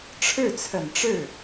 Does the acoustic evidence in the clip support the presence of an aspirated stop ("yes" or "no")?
yes